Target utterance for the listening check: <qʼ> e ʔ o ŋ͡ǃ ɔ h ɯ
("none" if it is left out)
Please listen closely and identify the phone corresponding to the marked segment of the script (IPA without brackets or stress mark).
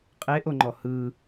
qʼ